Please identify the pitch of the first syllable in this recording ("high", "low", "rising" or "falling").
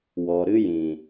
low